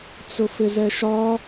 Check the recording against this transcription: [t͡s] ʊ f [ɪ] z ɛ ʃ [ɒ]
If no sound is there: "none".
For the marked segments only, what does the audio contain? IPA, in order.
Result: t͡s, ɪ, ɒ

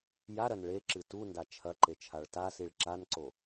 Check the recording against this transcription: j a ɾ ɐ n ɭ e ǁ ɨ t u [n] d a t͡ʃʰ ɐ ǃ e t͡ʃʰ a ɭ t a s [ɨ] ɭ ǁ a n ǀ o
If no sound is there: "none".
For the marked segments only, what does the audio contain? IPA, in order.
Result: n, i

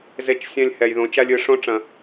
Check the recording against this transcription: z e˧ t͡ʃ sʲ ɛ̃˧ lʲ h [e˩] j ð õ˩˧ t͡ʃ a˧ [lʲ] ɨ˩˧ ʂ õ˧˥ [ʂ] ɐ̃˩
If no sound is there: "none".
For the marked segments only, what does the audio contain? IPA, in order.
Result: ɛ˩, lʲ, ʈ͡ʂ

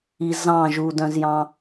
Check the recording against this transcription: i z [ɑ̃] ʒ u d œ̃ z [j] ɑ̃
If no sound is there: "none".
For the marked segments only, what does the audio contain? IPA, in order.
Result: ɑ̃, j

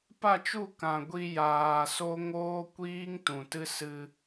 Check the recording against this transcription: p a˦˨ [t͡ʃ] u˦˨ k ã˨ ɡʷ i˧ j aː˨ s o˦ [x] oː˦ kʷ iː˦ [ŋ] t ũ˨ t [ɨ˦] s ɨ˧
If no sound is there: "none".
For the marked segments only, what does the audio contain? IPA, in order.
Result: t͡ʃ, ŋ, ŋ, ɨ˦

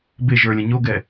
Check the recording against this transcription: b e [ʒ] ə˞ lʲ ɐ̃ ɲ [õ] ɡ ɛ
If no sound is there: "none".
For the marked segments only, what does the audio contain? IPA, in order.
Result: ʒ, o

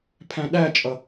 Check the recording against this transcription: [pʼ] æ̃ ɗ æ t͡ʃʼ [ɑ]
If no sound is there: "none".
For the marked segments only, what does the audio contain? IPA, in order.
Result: pʰ, ʌ

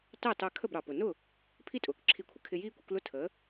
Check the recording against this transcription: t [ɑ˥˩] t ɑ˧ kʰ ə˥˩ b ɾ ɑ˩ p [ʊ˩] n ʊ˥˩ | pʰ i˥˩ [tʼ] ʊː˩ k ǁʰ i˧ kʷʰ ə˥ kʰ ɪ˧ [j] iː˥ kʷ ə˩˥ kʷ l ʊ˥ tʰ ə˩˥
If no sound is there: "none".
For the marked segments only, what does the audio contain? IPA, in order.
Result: ɑ˥˩, ʊ˩, tʼ, j

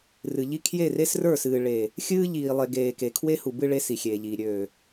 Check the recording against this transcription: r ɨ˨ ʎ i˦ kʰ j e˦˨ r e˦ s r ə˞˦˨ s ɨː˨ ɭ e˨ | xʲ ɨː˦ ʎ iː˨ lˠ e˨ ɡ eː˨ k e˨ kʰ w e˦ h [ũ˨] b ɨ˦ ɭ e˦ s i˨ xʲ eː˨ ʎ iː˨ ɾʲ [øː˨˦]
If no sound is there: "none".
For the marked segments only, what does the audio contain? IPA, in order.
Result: u˨, øː˨

